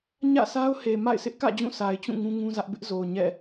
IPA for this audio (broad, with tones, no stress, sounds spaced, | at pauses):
ɲ ä̰˦˨ s a˦ ʊ̯ h e˨ m a̰˦˨ ɪ̯ sʰ ɪ˦ ʔ k ä̰˦˨ d͡ʑ ũ˦˨ sʰ a˨ ɪ̯ t͡ɕ ũ˦˨ ŋ ũ˦ ŋ ũ˦ z ä˦ ʔ b ɪ˦ ʔ z o˨ ʊ̯ ɲ ɛ̰˦˨